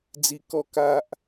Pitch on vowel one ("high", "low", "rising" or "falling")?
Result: low